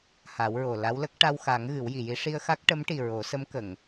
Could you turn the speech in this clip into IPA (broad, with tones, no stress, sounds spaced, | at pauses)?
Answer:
h a˨˩˦ w ɹ o˨˩ l a˧˥ w l ə˦˥ k̚ ʈ a˧ w x a˨˩˦ ŋ ɣ ɨ˨˩˦ w j i˨˩˨ j i˧˥ ʂ i˧ ə̯ x a˦˥ k̚ ʈ ə˧˥ m ʈ i˨˩ ɹ o˨˩˦ s ə˧˥ m k ə˨˩˨ ŋ